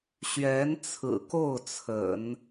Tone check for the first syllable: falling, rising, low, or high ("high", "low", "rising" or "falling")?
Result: rising